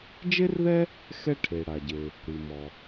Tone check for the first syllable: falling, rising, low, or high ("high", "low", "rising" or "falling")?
high